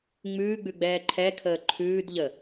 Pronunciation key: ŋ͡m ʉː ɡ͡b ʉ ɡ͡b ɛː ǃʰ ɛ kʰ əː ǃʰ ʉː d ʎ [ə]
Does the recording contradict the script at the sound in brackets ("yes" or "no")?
no